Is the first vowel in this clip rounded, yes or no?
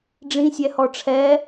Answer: no